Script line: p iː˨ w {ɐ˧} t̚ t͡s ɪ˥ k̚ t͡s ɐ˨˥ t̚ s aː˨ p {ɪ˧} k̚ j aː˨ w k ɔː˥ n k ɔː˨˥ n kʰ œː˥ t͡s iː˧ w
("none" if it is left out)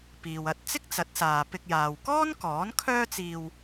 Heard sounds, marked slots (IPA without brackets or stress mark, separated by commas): ɐ˧, ɪ˧